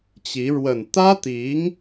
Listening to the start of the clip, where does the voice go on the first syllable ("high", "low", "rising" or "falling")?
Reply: rising